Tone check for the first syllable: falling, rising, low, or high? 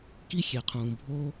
high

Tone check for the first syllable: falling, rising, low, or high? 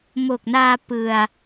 low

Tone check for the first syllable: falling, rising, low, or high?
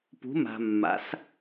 rising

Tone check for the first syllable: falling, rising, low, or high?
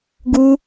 high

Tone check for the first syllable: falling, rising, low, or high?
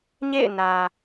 falling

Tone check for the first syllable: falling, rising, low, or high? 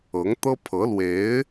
rising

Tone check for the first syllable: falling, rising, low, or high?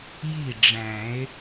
falling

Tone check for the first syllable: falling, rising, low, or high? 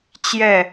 falling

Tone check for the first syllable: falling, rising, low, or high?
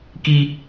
high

